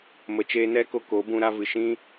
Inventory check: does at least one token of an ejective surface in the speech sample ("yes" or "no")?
no